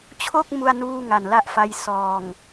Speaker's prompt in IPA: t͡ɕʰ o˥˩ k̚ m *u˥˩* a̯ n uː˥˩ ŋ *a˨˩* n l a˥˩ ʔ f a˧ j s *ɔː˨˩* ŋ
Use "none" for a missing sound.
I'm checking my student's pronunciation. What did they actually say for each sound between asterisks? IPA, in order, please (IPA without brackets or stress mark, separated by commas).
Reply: u˥˩, a˨˩, ɔː˨˩